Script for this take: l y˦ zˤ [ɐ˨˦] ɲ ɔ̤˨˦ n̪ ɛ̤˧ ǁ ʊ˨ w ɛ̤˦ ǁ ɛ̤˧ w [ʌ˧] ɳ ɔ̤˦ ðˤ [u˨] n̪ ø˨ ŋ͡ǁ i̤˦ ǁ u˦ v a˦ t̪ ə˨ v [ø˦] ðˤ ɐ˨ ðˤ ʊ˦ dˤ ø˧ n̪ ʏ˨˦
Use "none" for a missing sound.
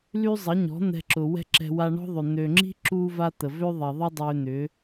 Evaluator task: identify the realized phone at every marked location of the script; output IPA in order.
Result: ɐ˨˦, a˧, ʏ˨, ø˦

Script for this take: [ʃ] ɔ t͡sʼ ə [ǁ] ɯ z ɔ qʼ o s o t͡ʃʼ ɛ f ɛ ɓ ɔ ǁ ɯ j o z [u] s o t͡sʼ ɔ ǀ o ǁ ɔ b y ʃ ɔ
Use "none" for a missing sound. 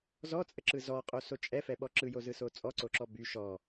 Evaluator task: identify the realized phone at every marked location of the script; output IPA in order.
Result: z, ǁ, ɯ

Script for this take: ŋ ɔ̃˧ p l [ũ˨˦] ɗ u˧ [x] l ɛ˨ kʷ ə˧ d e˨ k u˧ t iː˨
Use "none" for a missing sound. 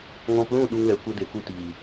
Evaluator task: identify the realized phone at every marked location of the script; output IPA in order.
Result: ũ˦˨, ŋ

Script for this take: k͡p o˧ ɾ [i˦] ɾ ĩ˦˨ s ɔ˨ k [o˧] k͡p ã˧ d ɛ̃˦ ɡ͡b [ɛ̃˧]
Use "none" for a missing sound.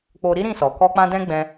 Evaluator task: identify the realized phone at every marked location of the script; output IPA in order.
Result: i˦, ɔ˧, ɛ̃˧

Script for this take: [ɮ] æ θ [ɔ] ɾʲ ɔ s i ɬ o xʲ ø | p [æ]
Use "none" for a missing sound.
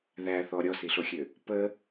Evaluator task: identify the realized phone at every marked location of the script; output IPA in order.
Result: ð, ɔ, ə

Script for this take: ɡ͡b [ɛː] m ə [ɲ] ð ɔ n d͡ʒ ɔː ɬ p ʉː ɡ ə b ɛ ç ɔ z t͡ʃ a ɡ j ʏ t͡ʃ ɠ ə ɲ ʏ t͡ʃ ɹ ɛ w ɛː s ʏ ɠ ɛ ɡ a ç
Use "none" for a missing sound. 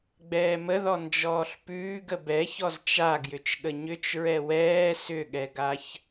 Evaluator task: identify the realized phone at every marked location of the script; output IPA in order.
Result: ɛː, none

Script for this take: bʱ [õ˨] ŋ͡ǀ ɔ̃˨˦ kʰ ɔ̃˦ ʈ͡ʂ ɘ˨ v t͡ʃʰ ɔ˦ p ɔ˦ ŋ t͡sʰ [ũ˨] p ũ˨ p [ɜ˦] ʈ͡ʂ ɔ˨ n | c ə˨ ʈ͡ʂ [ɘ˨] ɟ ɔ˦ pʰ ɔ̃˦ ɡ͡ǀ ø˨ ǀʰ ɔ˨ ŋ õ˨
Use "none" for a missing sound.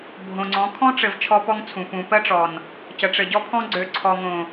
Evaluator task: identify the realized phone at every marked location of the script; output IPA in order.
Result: õ˨, ũ˨, ɜ˦, ɘ˨

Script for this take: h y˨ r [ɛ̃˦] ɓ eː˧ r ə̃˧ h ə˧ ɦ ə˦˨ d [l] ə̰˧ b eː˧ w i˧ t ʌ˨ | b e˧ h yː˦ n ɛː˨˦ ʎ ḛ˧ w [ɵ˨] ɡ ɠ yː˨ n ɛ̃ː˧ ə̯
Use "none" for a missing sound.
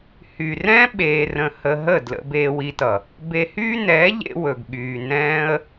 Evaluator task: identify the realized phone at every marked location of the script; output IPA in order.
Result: ɛ̃˦, l, ɵ˨

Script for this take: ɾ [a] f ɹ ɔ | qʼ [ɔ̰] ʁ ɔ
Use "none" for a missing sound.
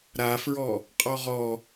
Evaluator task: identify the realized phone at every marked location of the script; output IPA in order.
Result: a, ɔ

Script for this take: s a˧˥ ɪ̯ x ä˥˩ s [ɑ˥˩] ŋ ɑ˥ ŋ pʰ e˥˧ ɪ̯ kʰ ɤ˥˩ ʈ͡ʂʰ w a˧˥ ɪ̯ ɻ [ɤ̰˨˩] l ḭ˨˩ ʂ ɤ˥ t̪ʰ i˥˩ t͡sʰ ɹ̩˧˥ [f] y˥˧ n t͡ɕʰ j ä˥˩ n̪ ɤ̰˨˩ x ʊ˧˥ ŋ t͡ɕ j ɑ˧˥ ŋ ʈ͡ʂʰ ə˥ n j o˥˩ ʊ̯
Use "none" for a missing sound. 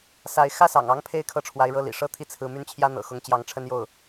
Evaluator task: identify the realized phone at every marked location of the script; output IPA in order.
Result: ɑ̰˨˩, ɤ˥˩, m

